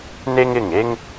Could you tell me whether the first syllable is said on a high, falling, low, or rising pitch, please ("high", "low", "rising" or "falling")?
high